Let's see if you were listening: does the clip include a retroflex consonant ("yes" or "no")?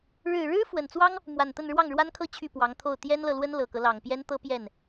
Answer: yes